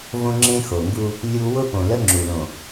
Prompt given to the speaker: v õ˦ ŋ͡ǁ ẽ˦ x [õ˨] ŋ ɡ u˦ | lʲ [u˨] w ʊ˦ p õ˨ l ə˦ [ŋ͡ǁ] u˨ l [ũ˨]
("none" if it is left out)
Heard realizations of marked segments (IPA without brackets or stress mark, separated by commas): o˨, u˦, ŋ͡ǁ, õ˨